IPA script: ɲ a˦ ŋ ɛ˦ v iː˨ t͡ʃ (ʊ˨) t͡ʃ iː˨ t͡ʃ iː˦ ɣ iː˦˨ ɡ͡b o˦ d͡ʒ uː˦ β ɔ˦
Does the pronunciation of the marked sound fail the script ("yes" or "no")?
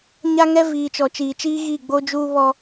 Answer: yes